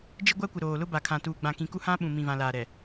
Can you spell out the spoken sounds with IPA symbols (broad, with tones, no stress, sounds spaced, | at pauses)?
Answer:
d͡ʒ ɪ˦ ɡʷ a˦ kʷ ɪ˨ ɾ oː˨ l ʊ˦ b a˨ kʰ ã˨ t uː˨ ɡ͡b ã˨ k ĩ˨ k u˦ h ã˦ ɓ ũ˨ m ĩ˨ v ã˨ l aː˨ ɾ ɛ˨